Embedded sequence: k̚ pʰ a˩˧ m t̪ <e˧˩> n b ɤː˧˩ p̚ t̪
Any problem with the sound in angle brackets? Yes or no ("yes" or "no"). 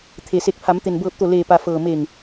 yes